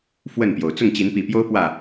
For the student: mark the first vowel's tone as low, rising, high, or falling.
falling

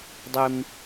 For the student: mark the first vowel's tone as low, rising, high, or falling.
high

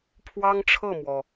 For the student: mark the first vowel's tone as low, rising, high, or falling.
high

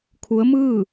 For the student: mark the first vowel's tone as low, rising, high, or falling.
rising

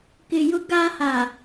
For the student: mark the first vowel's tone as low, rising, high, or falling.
low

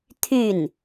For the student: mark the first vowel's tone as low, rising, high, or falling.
falling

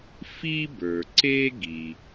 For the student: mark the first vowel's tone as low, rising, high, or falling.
high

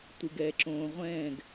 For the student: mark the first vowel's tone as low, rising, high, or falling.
low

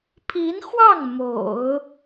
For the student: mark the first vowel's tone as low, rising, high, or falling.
rising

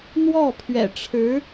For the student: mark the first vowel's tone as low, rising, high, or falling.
falling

